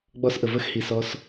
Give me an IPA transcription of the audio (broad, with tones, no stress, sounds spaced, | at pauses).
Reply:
ɡ͡b ɔ˦ s ʔ ə˧ v ə˦ x h i˧ s ɔ˦ s